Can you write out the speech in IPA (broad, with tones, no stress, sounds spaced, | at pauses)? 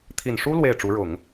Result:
t̪ʰ i˨˩ n ʂ u˥ l w e˥˩ ɪ̯ ʈ͡ʂ u˧˥ ɻ ʊ˨˩˦ ŋ